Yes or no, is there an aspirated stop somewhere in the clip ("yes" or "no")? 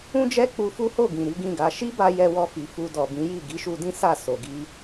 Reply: no